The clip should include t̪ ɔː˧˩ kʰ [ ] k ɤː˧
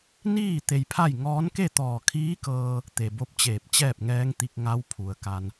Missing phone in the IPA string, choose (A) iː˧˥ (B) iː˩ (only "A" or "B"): A